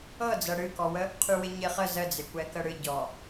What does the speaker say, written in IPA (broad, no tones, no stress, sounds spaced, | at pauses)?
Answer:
ɤ d͡z ɤ ɽ ɨ k ɔ w ə | qʰ y w ɪ ɲ ɪ χ ə z ə d͡z ɪ kʷ ɛ k ə ɽ ɨ ɟ ɔ